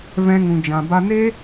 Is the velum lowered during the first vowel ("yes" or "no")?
yes